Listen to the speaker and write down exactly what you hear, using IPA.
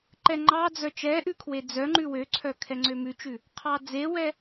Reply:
ǃɛŋ͡ǃɑd͡zœ t͡ʃɛʔʉ kʰwed͡zœŋ͡ǃʉ wøǀʰœ kʰɛŋ͡ǀømʉt͡ʃʉ | qʰɑd͡zewɛ

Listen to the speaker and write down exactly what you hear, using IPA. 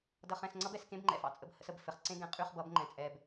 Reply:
dʌ˨χɛ̃˨s ŋ͡ǀʌ˦bɛ˨skẽ˦bŋ͡ǃɛ̰˨ fɑ̰˦t͡sʼə̰˦b hə̰˦sə˨bfɘ˨χ ǀẽ˦ɡɛ̃˨qʼy˦˨χ bʌ˨˦bŋ͡ǃɛ̃˨t͡sʼɛ˨b

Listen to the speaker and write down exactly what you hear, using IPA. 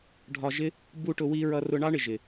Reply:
ɖʱɒ˧ʒɪ˦ | bu˦ʈʊ˧ wi˦ ɹʌ˧rʊ˧ɳɑ˦ɳɪ˨ ʒɪ˨

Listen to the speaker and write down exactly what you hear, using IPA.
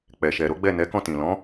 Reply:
k͡pɛ˨ʃɛ˨ɾo˨˦ɡ͡bɛ˦˨ nɛ˨˦kɔ̃˦˨tĩ˨ lɔ̃˨˦

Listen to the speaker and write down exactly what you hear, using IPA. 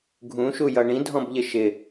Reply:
ɡʱũʃujʌ ɳĩdʱɔ̃bʎɪ ʃɪ

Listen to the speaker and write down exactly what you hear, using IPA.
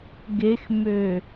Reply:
ɡexmø

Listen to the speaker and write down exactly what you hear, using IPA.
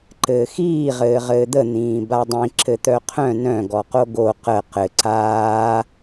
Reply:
ǃɘːxiː ʁɘːʁɘːd̪ə n̪ĩːbadˤĩ ǁɘt̪œqʰœ̃ nœ̃ ɡɔqoɡo qə qɘ ǀaː

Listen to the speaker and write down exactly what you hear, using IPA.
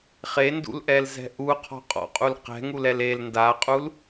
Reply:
χendṵlʔɛlzɛ̤ ʔuqʰɔ̤ qʼɔ̰qʼul qɛ̤ŋulɛl el ndaqʼul

